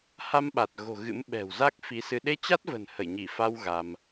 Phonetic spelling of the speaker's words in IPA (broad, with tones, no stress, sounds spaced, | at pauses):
h a˧ m ɓ a˨˩ t̚ ɣ o̤˨˩ ɣ ɨ̰˧˥ m ɓ ɛ̤˨˩ w z a˦˥ k̚ f i˨˦ s ɨ˧ ɗ e˧ t͡ɕ a˦˥ t̚ v ə̤˨˩ n h ə˧˩ j ɲ i˧˩ f a˧ w ɣ a˧ m